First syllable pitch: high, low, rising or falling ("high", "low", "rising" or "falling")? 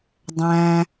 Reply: low